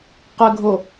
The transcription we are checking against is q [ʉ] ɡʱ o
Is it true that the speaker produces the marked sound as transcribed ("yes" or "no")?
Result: no